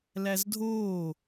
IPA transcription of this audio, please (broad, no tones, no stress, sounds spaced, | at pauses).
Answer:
l æ z dʱ oː